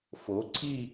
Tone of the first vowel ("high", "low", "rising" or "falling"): rising